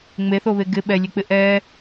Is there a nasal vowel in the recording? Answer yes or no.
no